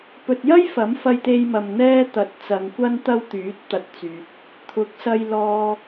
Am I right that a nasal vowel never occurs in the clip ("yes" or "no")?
yes